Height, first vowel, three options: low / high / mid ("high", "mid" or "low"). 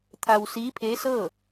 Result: low